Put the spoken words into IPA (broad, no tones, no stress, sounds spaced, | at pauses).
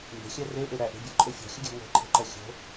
m b e̤ xʲ æ r e ʔ e ɾ æ ʔ e̤ bʲ o ǃʼ e fʲ ɔ̤ xʲ ə ɡʲ æ̤ ŋʷ e̤ ǃʰ e̤ ǃ ɜ xʲ o̤